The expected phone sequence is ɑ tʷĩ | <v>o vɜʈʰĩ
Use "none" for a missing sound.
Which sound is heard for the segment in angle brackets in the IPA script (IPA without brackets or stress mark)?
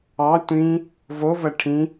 v